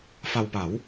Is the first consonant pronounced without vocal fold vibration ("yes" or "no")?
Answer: yes